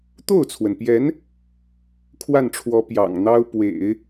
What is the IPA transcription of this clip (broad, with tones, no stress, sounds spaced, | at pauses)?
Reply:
t̪ o˥˩ ʊ̯ t͡sʰ w ə˩ n p j ɛ˧˥ n | kʰ w a˥˩ n ʈ͡ʂʰ w ɔ˧˥ p j ɑ̰˨˩ ŋ n̪ ɑ˥ ʊ̯ p w ḛ˨˩˦ ɪ̯